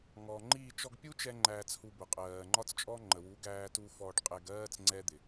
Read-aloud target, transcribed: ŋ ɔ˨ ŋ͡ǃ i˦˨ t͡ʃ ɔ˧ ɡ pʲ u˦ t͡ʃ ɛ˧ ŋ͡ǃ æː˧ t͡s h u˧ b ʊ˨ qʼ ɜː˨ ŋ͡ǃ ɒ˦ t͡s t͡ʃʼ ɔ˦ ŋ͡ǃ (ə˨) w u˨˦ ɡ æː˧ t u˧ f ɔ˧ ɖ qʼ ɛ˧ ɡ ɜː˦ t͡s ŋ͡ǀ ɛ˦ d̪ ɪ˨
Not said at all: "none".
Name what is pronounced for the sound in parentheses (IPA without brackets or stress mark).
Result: ə˨